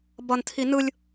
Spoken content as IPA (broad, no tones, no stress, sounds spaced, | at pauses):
b ʌ n tʰ i n ɯ lʲ